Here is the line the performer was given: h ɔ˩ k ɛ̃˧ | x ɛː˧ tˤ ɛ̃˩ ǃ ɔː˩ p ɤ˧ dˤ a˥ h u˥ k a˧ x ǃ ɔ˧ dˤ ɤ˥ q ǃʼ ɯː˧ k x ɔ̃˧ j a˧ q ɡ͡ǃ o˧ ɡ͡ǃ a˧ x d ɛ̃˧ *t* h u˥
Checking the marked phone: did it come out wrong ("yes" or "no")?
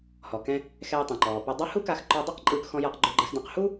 yes